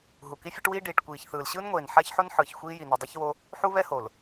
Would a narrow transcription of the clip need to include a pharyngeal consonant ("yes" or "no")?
yes